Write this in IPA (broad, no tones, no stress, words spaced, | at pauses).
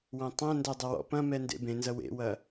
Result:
wɐ̃tˤɐ̃ndɐ dˤɐwɔ̰pɐ̃mɛ ndḛbẽnzɐ wḛwɐ